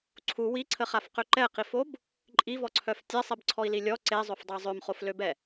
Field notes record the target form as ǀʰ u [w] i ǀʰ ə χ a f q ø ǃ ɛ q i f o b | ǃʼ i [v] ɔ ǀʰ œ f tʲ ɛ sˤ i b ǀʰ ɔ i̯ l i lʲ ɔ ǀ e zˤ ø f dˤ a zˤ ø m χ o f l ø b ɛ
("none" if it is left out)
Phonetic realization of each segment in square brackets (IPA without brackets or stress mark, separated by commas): w, v